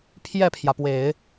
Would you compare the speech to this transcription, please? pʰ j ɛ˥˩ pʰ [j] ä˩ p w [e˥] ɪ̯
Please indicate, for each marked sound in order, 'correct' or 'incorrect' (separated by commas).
correct, incorrect